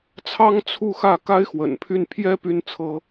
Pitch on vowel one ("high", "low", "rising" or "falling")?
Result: high